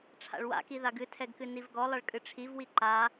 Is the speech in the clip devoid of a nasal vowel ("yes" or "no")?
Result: yes